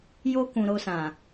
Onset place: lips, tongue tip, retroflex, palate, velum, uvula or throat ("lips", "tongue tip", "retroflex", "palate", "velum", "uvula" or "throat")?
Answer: palate